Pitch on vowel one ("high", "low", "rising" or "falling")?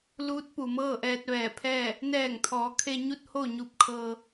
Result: rising